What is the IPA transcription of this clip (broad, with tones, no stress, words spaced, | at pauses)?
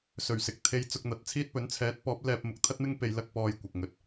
sɵ˨˩ɥsɪ˨k̚t̪ʰe˧j t͡sʊ˧k̚n̪ɐ˨˥t̚t͡sʰiː˥t̚pɵ˨˥n t͡sʰɛː˨˥t̚pɔː˨˥p̚ lɛː˧p̚ mʊ˨˥k̚t̪ʰɐ˥t̚mɪ˥ŋ pe˧jlɐ˥k̚pɔː˧j kʷɐ˨k̚ŋɵ˧t̚